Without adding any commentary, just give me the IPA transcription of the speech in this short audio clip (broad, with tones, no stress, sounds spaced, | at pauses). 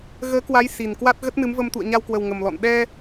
ɣ əː˨˦ k w a˨˦ j s i˨˩ n k w a˦˥ t̚ ɣ ə˦˥ t̚ n ɨ˨˦ m v ə˧ m t̪ ṵ˧˨ ə̯ ɲ a˧ w k w ə˨˩ w ŋ ə˨˩ m l ɔ̰˧˨ n ɗ ɛ˧